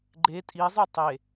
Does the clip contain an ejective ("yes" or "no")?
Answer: yes